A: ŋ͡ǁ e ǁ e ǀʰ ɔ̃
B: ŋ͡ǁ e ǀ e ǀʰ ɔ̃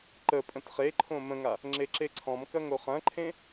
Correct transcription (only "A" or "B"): A